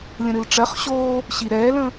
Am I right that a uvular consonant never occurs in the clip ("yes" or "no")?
no